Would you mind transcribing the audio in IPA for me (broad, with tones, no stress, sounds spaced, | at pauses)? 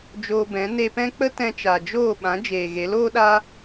d͡ʒ oː˧ b ɛ̃˨˦ n e˧ p ɛ̃˦ k͡p ə˦ t ɛ̃˧ t͡ʃ a˨ d͡ʒ oː˦˨ ɓ ã˨˦ d͡ʒ eː˨ ɣ e˨˦ l oː˦ ɗ a˦